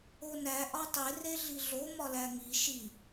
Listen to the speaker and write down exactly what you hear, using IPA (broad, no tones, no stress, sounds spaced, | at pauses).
o n æ ʔ ɒ tˤ e r e ɮ i ɮ o m ɒ l æ ŋ i ʃ i